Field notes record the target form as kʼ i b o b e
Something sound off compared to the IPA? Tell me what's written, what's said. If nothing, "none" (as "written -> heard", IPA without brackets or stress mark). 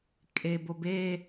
i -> e